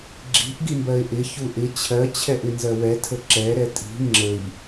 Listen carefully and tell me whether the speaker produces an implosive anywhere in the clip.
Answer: no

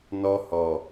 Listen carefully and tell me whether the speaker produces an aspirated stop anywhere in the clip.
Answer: no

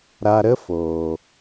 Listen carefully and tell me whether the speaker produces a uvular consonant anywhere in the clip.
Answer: no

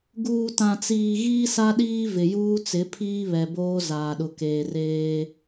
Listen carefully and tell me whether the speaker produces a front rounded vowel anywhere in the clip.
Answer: no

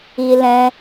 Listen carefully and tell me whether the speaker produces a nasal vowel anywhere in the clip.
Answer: yes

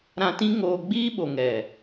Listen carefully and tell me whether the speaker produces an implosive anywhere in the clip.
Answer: yes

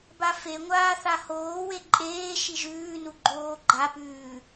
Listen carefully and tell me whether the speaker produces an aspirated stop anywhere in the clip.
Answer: no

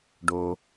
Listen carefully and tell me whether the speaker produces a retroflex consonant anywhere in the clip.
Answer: yes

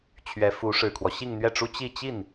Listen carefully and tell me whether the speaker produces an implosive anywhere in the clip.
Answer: no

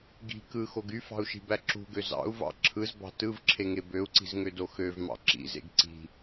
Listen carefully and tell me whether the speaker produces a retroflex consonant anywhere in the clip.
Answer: no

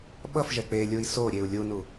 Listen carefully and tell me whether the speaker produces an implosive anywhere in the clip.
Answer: yes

